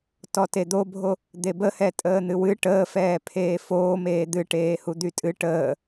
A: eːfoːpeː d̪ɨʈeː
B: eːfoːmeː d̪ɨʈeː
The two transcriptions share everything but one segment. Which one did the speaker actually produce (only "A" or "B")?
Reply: B